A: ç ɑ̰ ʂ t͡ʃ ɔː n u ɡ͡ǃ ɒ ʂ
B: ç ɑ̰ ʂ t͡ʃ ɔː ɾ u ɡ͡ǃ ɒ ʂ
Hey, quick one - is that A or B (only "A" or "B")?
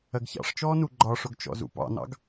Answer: A